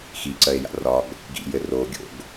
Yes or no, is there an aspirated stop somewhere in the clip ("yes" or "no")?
no